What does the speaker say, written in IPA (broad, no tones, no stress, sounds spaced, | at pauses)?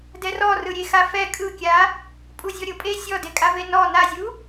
d ɛ r ɔ r ɯ ɾʲ e x a f ɛ kʼ ɯ kʲ a | pʼ u zʲ ɔ ɾʲ ɤ pʼ e sʲ ɔ d e kʼ a v e n ɔ n a zʲ u